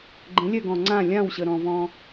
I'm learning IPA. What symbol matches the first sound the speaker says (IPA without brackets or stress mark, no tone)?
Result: ɡ͡ǃ